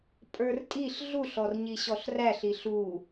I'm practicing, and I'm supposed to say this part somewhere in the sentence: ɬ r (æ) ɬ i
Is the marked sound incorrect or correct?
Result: correct